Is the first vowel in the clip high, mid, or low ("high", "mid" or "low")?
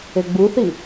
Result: mid